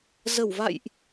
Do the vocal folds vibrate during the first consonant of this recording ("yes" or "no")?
yes